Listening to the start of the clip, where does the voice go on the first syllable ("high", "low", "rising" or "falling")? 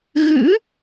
rising